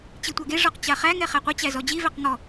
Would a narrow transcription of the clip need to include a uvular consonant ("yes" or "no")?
yes